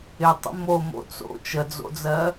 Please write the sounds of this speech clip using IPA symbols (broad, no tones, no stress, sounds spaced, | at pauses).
ɪ tˤ ə̰ m o m o̰ t͡s o̰ t͡ʃ ə d͡z o̰ d͡z ɜ